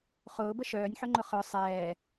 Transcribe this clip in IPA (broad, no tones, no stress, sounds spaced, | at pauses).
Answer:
χ ʊː b ə ʃ œː nʲ ħ ɵ ŋ͡ǃ ʊ χ œ sˤ ɛː